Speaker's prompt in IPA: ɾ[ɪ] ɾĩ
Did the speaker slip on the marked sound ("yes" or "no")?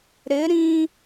no